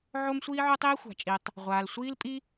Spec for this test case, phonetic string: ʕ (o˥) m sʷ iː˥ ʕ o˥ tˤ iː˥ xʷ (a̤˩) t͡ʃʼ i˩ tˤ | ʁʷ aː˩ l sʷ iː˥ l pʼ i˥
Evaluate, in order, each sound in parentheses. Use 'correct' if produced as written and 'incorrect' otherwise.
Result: correct, correct

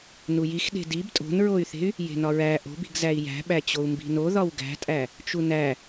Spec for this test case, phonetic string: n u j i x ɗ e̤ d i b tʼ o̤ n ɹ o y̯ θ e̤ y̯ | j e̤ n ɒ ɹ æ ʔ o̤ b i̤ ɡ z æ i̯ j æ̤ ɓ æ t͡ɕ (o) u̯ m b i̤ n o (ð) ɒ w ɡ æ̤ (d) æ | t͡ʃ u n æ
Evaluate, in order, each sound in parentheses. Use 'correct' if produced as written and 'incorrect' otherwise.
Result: correct, correct, incorrect: tʼ

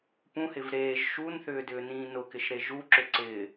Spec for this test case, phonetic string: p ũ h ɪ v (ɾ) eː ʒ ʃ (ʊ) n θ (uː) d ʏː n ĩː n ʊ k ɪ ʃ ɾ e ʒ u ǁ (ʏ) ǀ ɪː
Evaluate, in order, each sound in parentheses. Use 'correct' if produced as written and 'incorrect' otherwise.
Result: correct, incorrect: u, incorrect: ʏː, correct

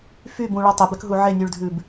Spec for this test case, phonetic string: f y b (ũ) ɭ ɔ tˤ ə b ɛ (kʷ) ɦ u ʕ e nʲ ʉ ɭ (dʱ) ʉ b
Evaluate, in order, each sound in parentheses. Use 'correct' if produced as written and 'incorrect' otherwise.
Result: correct, incorrect: k, correct

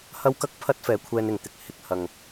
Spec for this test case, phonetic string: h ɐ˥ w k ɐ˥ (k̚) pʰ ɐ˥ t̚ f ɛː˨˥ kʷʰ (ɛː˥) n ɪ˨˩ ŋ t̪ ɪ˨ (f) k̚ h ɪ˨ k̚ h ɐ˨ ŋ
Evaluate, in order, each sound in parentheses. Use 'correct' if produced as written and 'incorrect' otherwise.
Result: correct, incorrect: ɛː˧, incorrect: none

